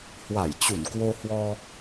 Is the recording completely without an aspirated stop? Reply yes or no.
yes